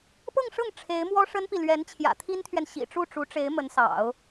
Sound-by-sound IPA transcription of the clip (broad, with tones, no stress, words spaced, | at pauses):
pɤ˥˧ŋʂɤ˥˩ŋ ʈ͡ʂʰe˧˥ɪ̯mwɔ˥ʂə˥npi˨ lɥɛ˧˥nt͡ɕʰjä̰˨˩t̪ʰi˥nt̪ʰɥɛ˨n ɕḭ˨˩ʈ͡ʂu˥˩ʈ͡ʂu˧˥ʈ͡ʂe˧˥ɪ̯ mə˧˥nsɑ̰˨˩˦ʊ̯